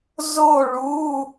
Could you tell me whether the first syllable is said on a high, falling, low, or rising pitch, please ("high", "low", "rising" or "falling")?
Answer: falling